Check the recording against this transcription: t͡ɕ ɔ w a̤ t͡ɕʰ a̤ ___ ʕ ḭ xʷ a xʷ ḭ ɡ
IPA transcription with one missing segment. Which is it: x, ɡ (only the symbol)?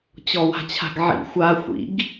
ɡ